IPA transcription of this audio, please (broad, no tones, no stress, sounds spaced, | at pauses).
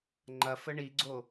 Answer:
ŋ͡ǃ ɐ f ə ɳ i ɡ͡ǀ o